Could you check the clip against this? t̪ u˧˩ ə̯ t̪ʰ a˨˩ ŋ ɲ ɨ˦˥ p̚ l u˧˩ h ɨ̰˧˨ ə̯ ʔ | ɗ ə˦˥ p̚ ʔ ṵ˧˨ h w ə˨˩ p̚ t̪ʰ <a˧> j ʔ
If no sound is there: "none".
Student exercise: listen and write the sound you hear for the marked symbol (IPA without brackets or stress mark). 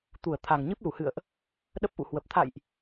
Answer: a̰˧˨